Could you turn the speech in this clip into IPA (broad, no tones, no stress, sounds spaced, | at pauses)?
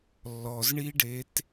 lː ɔ z ɳ i ɖ e t